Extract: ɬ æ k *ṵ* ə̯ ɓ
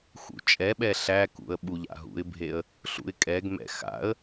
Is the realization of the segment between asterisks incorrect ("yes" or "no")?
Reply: no